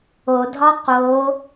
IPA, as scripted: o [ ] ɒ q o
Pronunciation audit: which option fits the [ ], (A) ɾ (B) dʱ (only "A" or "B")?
B